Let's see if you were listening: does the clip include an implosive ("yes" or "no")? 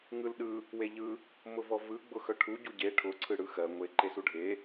yes